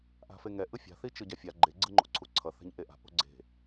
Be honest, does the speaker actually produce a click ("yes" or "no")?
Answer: yes